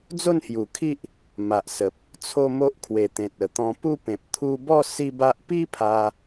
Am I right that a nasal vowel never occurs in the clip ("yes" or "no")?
no